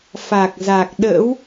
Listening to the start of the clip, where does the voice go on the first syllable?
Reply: low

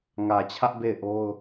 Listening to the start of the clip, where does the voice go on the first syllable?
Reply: low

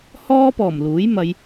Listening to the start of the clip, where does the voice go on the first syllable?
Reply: high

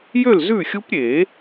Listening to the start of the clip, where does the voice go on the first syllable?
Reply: falling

